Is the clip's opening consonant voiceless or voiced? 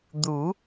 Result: voiced